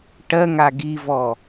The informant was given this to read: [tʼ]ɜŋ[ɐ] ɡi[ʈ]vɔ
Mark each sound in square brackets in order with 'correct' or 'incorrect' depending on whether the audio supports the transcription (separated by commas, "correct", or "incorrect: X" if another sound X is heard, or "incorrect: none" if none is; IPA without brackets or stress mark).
incorrect: ʈ, incorrect: a, incorrect: none